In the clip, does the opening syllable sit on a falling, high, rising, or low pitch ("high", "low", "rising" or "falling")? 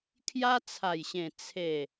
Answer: high